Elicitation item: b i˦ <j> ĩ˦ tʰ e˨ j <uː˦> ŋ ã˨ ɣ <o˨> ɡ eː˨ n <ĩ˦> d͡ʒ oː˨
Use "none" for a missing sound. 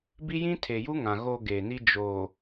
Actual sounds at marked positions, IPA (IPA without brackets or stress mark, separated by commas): j, u˦, o˨, i˦